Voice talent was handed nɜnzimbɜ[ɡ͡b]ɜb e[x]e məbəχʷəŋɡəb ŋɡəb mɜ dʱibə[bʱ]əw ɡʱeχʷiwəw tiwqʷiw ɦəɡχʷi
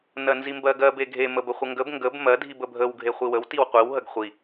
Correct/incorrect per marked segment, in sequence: incorrect: ɡ, incorrect: ɡʱ, correct

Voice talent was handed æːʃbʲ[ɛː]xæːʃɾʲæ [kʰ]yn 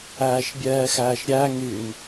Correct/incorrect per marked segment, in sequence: correct, incorrect: ŋ

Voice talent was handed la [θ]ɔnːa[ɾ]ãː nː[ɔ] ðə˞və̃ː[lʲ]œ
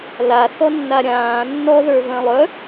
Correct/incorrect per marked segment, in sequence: correct, incorrect: ɾʲ, correct, incorrect: lˠ

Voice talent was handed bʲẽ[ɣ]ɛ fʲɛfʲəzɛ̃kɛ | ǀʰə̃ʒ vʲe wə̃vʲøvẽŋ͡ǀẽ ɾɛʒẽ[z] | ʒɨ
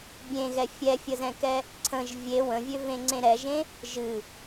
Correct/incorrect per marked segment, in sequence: correct, incorrect: none

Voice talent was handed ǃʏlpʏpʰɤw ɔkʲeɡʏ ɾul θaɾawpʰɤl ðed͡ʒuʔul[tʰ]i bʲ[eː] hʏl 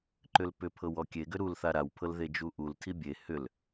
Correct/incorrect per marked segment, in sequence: correct, incorrect: e

